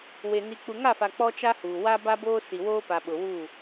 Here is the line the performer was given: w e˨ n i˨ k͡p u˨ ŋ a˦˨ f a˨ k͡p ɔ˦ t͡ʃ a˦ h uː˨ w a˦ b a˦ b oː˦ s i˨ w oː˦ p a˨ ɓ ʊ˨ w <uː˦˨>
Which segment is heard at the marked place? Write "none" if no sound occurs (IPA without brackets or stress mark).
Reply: uː˦˨